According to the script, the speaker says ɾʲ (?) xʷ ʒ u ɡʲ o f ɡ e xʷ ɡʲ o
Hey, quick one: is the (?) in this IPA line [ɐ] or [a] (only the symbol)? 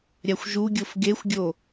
a